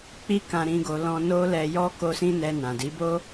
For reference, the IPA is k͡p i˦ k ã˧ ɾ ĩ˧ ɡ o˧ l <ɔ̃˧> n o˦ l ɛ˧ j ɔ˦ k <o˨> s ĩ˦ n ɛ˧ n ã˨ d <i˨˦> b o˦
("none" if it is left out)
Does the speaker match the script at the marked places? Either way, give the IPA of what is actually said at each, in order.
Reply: ɔ̃˧, o˦, i˨˦

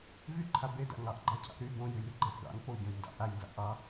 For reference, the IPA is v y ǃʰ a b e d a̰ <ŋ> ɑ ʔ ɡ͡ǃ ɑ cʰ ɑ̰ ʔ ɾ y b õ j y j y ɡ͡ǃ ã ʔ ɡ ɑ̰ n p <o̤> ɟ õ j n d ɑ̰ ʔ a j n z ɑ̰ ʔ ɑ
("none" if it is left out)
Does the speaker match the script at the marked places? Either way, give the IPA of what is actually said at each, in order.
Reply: ŋ, o

